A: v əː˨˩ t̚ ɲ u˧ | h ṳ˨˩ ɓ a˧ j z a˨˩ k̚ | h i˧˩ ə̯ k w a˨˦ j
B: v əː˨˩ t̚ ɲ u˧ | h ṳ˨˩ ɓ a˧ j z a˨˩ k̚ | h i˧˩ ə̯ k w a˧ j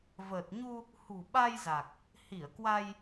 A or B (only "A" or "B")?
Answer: B